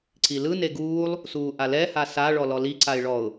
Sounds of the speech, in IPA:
ǀ i l ɯ n e ɡ uː lˠ | s uː ʔ a l ɛ h a s a ɭ ɔ l ɔ l i ǀ a ɪ̯ ɭ ɔ ʊ̯

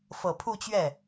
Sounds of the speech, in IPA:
f ɤ˨˩ pʰ u˥˧ t͡ɕ ɥ ɛ˥˩

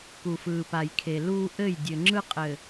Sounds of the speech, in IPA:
k u˨ f ɯː˨ p a˨ j kʰ e˨ l uː˦ ʔ ɘ˦˨ j dʲ ɘ˨ ŋ͡ǁ ɯ˦ qʼ ɘ˨

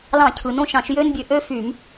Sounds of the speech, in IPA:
l ɑ̃˧˩˧ cʰ ɯ˩ n õ˥˨ ʃ ɑ̃˧˩˧ ʃ j ø˦˥ n bʲ ø˨˦ ʔ ø˦˥ f y˧˩˧ m

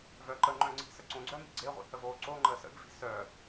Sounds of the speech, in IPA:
v œ ǃ ə ŋ͡ǃ œ̃ ŋ͡ǀ i̤ s ə ǀ õ ɡ͡ǀ œ m i̤ ɡ͡ǀ e ʁʷ ḭ h ə v oː ǀ o ŋ͡ǃ əː s ə̰ ɡ v i̤ s œ

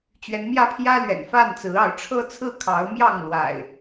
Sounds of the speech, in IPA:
t͡ɕ ɥ ɛ˨˦ n m j ä˦ pʰ j ä˦ l ɥ ɛ̰˨˩ n f a˥˨ n t͡s ɹ̩˨˦ ɑ˨˦ ʊ̯ ʈ͡ʂʰ ɤ˦ t͡sʰ ɹ̩˥˨ kʰ ɑ˨˦ ʊ̯ m j ɑ˥˨ ŋ l w a̰˨˩ ɪ̯

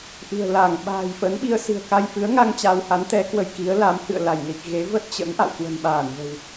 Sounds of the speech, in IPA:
ʔ ɨ̤˨˩ ə̯ l a˧˩ ŋ ɓ a̤ː˨˩ j f ə˨˦ n ɓ i˧ ə̯ s ɨ̤˨˩ ə̯ k a˧ j f ɨ˨˦ ə̯ ŋ a˧ ŋ t͡ɕ a˧ w h a˨˦ n t̪ ɛ˨˦ k w ə˧ j k i˨˦ ə̯ l a˨˦ m h ɨ̰˧˨ ə̯ l a˧˩ j l i˨˩ k̚ ɣ e˨˦ v ə˦˥ t̚ t͡ɕ ə̰˧˥ n ʔ a̰˧˨ w k w ə̤˨˩ n ɓ aː˧˩ n v ə̤˨˩ w

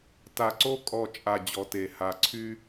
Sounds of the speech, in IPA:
t a˨ ǀ o˦ kʼ ɔ˦˨ t͡ʃʼ a˨ d͡ʑ ɔ˨ t e˨ h a˨ ǀʰ y˦

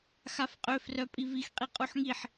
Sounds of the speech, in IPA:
x a f qʼ ø f r œ pʼ i v i x qʼ i qʼ u ħ ŋ i ħ

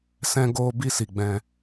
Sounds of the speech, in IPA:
s ɛ̃˧ ɡ oː˧ b i˧ s i˨ ɡ͡b ɛ̃˧

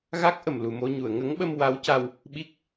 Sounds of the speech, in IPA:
ɣ a˦˥ k̚ ʔ ə˨˩ m l u˨˩ m o˧ ɲ u˨˩˨ ə̯ ŋ ə˧˥ ŋ ɓ ə˧ m w a˧˥ w c a˧ w | ɓ i˦˥ k̚

